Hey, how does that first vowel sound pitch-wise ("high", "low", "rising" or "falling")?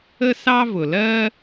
high